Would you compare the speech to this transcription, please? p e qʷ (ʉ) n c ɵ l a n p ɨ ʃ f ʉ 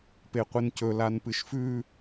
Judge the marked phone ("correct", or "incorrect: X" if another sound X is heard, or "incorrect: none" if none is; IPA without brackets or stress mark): incorrect: ɨ